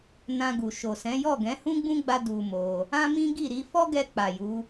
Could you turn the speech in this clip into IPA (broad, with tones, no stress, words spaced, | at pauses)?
nã˧ɡu˨ ʃo˨sɛ̃˨˦jɔ˦˨ ɡɛ̃˨˦hũ˦ɡ͡bũ˦ɡ͡ba˧ du˧mo˧ | ã˦mĩ˦ɡi˦˨ ɾi˧fɔ˦ɡɛ˧ k͡pa˨ju˨˦